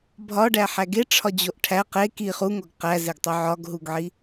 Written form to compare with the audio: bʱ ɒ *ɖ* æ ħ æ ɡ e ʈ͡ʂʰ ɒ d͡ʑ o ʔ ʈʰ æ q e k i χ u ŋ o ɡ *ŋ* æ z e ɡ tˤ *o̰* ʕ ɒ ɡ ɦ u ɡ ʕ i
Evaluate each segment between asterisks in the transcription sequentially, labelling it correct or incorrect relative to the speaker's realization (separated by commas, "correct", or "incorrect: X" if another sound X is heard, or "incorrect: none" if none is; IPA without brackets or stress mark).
correct, incorrect: q, incorrect: o